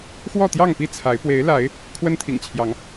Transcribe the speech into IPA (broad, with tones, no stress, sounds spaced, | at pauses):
x w ɔ˥˨ t̪ j ɑ˥˨ ŋ p i˥˨ t͡sʰ a˨˦ ɪ̯ p w e˨˦ ɪ̯ l a˨˦ ɪ̯ | kʰ w ə˦ n t̪ʰ ḭ˨˩ ŋ t͡ɕʰ j ɑ˨˦ ŋ